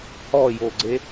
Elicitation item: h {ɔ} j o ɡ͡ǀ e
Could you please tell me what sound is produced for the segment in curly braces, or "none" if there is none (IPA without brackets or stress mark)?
ɔ